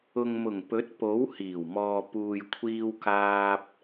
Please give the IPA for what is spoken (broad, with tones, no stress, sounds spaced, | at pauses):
ʊ˨ ŋ m ʊ˨˩ ŋ p ɵ˨˥ t̚ p o˨˥ w h iː˨˩ w m ɔː˨ p uː˨ j kʷʰ iː˧ w k aː˧ p̚